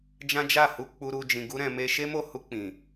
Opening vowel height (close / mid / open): open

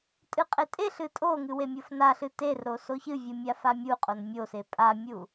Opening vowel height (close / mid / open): close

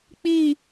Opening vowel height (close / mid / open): close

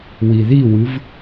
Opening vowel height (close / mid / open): close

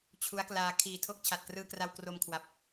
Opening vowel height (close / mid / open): close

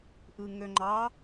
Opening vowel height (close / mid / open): close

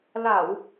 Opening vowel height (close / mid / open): open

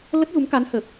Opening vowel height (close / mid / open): mid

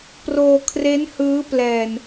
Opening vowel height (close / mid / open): mid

